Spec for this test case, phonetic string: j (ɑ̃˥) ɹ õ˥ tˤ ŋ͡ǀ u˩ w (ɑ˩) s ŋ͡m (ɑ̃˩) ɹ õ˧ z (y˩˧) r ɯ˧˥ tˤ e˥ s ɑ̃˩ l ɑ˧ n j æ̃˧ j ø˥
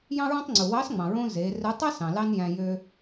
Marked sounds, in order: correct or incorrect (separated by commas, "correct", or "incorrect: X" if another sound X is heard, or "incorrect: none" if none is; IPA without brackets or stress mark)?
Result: correct, incorrect: ɑ˧˥, correct, incorrect: e˩˧